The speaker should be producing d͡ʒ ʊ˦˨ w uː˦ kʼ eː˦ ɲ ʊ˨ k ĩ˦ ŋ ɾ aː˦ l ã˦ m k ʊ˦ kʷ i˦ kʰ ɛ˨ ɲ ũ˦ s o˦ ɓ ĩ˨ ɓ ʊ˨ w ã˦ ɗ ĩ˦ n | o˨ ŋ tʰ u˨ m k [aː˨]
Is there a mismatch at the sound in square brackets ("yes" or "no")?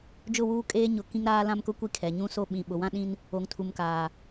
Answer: no